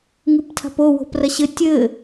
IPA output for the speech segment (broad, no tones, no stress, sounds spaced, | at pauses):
ŋ ɨ p tʰ a̤ p o w o̤ p r ɐ ɕ ɘ tʲ ɘ